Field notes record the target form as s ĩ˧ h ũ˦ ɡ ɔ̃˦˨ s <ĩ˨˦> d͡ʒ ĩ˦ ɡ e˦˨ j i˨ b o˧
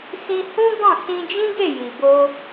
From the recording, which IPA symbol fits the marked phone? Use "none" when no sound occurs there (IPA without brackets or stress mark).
ĩ˧